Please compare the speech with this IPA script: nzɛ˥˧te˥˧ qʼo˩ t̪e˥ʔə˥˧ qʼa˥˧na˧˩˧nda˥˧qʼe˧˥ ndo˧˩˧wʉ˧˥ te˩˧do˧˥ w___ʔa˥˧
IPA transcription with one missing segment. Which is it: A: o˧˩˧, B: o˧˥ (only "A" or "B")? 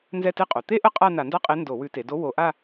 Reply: A